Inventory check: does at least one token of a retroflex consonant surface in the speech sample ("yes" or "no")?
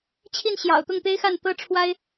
yes